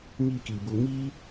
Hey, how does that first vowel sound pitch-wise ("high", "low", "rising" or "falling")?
high